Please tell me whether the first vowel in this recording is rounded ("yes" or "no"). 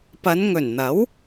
no